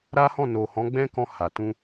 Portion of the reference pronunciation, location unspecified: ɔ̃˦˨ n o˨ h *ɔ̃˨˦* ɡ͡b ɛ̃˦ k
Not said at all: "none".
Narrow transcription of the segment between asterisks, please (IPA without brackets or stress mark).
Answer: ɔ̃˨˦